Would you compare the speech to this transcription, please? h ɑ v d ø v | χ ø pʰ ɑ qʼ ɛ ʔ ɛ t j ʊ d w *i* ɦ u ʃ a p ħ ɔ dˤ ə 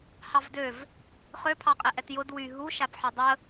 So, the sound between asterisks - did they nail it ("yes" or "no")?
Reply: no